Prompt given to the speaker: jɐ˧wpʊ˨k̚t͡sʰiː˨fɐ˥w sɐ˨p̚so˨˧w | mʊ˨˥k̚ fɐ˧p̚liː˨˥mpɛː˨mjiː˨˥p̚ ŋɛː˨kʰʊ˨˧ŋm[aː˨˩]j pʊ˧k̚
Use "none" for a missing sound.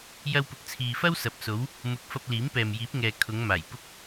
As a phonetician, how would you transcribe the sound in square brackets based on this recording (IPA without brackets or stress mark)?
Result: aː˨˩